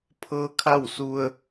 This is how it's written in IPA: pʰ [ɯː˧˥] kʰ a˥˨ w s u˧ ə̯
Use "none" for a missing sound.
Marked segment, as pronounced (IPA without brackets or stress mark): ɤː˧˥